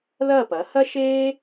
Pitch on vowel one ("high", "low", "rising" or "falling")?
falling